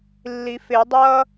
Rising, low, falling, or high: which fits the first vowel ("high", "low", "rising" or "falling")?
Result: rising